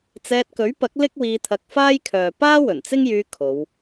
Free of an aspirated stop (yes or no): no